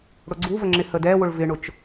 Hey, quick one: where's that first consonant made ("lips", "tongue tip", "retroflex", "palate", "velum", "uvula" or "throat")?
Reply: retroflex